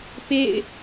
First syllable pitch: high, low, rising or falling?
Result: falling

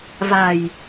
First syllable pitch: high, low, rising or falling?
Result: low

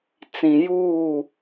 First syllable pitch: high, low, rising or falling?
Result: low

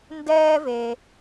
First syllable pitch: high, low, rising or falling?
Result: high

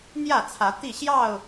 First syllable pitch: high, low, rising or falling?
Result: falling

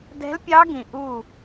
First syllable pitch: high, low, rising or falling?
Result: rising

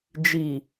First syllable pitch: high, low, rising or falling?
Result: low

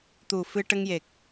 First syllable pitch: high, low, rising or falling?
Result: low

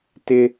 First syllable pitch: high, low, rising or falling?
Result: high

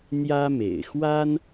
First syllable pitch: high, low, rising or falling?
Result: high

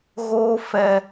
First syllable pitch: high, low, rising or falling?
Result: high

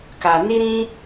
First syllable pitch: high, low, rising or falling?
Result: low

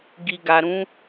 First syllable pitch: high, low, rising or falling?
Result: low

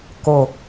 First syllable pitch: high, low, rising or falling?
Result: low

